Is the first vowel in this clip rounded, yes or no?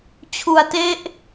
yes